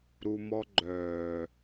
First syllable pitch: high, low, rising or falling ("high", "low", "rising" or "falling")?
high